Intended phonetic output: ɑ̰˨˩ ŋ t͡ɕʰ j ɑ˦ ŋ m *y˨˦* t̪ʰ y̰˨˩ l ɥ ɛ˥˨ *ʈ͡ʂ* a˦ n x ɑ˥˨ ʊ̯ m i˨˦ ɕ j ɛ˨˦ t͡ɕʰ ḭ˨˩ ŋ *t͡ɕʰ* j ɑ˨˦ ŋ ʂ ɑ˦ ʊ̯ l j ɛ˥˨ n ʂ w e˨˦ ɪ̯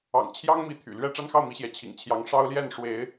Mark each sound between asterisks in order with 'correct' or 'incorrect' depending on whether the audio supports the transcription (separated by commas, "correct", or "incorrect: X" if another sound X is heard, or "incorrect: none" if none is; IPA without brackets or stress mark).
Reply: incorrect: i˨˦, correct, correct